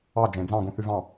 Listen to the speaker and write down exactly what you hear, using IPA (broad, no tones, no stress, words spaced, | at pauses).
ɑ d͡ʒẽ d͡zɑ̃ɡũ θyvɑ̃